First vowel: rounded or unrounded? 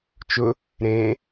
rounded